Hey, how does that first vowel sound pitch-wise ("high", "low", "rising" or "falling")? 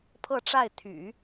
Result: falling